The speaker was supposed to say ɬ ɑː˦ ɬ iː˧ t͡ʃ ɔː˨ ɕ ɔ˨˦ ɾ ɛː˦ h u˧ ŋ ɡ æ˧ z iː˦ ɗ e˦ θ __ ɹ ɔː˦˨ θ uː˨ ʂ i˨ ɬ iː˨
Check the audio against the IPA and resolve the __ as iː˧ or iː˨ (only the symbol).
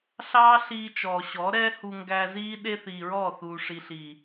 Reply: iː˨